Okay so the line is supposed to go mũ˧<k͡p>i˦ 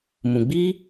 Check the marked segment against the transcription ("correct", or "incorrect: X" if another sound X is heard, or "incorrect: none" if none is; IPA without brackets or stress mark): incorrect: ɡ͡b